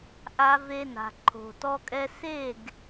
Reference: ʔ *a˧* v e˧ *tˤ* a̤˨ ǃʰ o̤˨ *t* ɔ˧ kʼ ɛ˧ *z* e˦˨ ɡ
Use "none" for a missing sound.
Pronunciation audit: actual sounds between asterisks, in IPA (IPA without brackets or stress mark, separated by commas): a˧, n, t, s